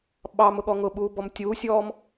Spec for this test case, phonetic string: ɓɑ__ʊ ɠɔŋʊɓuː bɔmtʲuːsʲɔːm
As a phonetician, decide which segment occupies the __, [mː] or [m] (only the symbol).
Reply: m